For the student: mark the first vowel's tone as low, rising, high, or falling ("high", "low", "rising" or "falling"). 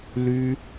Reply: high